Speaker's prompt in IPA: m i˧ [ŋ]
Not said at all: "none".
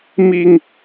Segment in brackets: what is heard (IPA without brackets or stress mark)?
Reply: ŋ